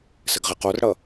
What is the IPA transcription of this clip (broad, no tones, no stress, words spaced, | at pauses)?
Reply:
sɘɡʁɘqorɽʌ